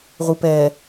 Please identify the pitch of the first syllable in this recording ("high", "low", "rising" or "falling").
low